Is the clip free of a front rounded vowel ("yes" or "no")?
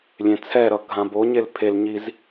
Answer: yes